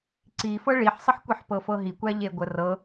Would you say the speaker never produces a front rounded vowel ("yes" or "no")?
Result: yes